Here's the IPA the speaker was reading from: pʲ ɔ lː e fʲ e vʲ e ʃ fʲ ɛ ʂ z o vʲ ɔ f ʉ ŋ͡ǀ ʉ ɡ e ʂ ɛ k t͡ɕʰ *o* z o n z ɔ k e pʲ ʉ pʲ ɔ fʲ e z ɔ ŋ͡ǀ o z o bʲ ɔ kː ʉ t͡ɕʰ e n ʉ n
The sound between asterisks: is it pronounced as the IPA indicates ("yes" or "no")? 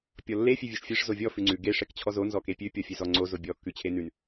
no